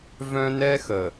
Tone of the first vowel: high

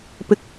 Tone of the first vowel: rising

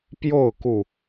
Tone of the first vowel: falling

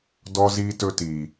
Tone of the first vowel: high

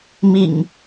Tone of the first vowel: low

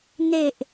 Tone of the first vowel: low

